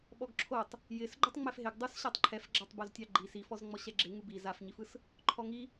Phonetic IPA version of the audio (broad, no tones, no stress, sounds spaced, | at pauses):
ɓ ɔ ɡ ǁʰ o tˤ | j ɪ s ɡ͡ǃ u tˤ ŋ͡m ɛ f ɦ ɪ ɡ dˤ u s ɕ a tˤ ǃʰ ɛ f ɡ͡ǁ a tˤ b o z tʲ ɑ ɡ͡ǃ i s i f ɔ z ŋ͡m ɔ ɕ ɛ ɡ͡ǁ ɪ ŋ u b i z a f ɲ i f ɯ s | ǃʰ ɔ ŋ i